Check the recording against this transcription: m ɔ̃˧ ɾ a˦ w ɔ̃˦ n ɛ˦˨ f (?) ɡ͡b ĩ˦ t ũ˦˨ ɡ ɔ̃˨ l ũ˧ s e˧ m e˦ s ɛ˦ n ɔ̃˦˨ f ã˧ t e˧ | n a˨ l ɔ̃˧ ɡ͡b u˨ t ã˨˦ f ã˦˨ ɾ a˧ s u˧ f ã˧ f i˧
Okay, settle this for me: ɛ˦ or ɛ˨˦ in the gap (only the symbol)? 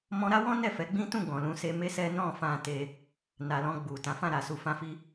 ɛ˨˦